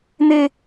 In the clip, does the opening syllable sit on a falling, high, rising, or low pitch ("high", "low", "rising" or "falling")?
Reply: high